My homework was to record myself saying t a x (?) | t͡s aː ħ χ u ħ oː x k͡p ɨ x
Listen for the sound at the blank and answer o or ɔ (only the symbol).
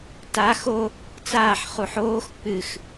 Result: o